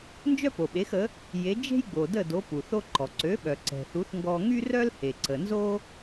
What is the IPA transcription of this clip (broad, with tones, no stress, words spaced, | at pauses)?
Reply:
nd͡ʒœ˥po˩ɓe˩˥xə˩˥ | je˩˥ d͡ʒe̤˥jɡ͡bo˩də˥˩do˩˥ pu˩θo˧ǃɔ˩ ǀø˩˥ɓœ˩ ǀɛ̤˩θu˩˥θŋɡɔ˧ ŋy˥rœ˥lhe˩ ǀə˩nzo˥